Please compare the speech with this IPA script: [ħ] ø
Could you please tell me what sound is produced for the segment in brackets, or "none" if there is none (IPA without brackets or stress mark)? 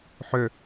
ħ